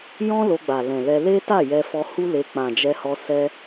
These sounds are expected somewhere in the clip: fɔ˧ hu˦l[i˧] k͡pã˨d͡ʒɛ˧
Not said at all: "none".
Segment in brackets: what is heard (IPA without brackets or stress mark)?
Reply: e˧